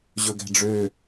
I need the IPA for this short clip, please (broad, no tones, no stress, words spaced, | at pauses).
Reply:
ʑɵɡæ̤ɖ͡ʐø